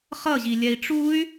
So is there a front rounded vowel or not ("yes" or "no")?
yes